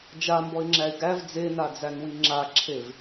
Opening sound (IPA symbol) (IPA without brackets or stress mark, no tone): d͡ʒ